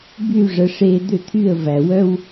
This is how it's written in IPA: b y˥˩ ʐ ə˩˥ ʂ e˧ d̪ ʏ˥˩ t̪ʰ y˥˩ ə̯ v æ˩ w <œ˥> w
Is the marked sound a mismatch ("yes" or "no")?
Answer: no